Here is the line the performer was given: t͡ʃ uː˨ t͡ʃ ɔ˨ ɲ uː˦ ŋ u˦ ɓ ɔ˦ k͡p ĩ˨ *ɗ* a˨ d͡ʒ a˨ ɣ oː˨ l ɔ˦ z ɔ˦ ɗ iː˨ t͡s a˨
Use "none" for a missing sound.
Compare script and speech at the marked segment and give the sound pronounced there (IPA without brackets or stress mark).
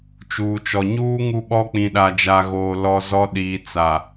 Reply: ɗ